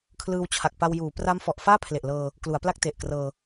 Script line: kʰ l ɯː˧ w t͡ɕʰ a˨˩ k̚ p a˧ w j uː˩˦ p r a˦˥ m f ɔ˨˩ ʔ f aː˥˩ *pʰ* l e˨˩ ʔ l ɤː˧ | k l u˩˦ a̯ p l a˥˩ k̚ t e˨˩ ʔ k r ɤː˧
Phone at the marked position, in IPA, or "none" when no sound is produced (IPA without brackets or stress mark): pʰ